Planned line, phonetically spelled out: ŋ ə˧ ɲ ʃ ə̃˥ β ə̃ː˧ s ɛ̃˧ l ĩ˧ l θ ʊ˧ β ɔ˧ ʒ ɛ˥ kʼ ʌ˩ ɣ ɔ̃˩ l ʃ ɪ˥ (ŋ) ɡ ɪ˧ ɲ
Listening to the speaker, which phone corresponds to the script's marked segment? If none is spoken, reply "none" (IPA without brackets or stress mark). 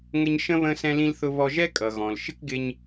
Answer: k